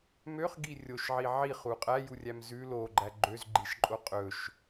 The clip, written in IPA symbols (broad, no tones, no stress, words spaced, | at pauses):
møχɡi rʲoʃʕi ʕiχu qʼæjurʲæm zʉ loɡ͡ǃæ ɡ͡ǃøzɡ͡ǃiʃǃʼo qʼɵʃ